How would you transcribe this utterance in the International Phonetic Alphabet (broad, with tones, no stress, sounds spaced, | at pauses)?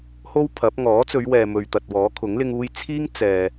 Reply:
h o˥ w pʰ ɐ˨˥ p̚ ŋ ɔː˨˥ t͡s ɵ˨˧ ɥ w ɛː˨ m ɵ˨ ɥ t̪ ɐ˨ t̚ w ɔː˨˥ kʰ ʊ˨˥ ŋ l ɪ˧ ŋ uː˧ j t͡sʰ iː˥ ŋ t͡s ɛː˨